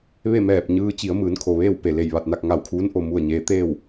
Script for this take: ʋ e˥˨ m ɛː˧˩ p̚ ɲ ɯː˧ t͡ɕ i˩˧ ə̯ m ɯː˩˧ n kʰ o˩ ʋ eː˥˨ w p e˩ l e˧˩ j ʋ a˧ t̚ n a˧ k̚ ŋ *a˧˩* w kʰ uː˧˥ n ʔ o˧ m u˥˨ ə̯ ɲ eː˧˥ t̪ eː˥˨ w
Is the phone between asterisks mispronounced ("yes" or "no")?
no